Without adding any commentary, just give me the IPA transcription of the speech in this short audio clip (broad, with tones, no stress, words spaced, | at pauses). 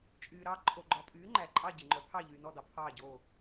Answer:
t͡ʃʼyː˨ɾɑ˥˨ ǃʰo˨ɡ͡ǃɔ˨pʼyː˨˦ ŋ͡ǃæ˨ǃʼɑ˥˨ ɟe˨ŋ͡ǃœ˨˦ pʰɑ˥˨ʎyː˨nɔ˥˨dɑ˨ pʰɑː˥˨ɟo˥˨